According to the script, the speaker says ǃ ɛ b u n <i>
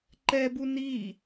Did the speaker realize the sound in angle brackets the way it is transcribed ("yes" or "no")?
yes